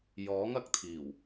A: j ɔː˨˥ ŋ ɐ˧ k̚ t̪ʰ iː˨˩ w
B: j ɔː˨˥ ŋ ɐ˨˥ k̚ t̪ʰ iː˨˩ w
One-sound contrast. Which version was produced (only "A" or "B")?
A